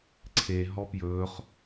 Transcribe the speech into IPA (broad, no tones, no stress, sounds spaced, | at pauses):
ǀʰ e ɦ ɔ p j ɵː χ